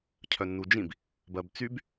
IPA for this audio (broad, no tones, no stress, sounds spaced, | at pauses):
cʰ œ nː u d͡ʒ ĩ b | b ɜ b t͡s y b